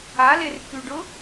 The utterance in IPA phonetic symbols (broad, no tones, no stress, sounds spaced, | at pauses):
a l e r k y ɖ ʊ